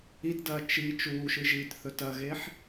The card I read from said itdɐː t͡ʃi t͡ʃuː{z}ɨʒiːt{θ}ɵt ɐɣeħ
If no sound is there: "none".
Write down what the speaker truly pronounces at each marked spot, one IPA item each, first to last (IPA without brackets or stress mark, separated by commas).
ʃ, θ